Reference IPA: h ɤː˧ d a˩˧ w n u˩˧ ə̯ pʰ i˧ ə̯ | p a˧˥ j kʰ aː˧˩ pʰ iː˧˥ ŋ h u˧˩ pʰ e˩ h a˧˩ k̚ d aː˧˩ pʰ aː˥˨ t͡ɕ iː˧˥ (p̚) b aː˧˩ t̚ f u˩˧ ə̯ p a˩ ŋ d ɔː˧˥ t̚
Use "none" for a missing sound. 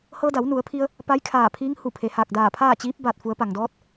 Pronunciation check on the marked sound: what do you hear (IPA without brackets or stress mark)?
p̚